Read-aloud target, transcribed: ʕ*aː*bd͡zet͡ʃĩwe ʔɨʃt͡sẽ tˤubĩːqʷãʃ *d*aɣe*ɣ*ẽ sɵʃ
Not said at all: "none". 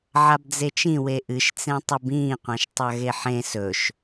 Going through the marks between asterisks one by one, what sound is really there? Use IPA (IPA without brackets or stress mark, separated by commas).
a, tˤ, ħ